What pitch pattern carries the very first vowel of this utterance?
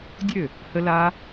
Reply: falling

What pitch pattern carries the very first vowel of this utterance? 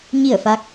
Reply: falling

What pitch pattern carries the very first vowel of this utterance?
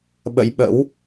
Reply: rising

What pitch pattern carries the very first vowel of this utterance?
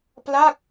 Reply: falling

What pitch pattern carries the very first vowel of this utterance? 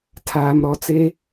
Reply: low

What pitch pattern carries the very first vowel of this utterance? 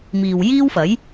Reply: low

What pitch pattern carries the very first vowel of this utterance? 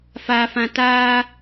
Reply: low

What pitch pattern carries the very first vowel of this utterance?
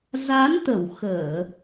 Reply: rising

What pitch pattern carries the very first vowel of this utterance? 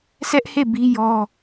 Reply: high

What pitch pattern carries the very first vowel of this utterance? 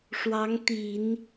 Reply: rising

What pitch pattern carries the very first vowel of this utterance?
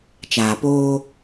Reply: low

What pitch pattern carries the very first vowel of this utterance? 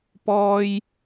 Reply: high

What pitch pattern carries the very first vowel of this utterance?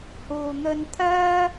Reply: low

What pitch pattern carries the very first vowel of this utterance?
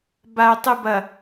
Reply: low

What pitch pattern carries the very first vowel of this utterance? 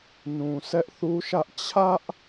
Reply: low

